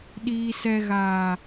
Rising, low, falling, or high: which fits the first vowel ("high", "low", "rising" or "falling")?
low